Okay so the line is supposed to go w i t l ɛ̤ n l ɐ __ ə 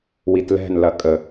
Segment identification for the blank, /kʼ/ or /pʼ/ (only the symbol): kʼ